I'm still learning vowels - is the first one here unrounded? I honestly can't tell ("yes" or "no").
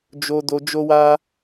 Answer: no